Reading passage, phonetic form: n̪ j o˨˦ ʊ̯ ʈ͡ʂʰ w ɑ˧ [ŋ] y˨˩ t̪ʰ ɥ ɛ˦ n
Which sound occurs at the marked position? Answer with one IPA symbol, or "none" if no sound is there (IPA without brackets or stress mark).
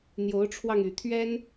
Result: ŋ